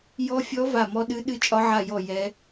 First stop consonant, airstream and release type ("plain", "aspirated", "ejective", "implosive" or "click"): implosive